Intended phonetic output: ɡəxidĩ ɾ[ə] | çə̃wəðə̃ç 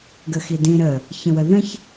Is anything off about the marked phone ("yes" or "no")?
no